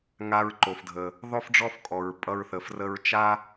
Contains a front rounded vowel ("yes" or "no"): no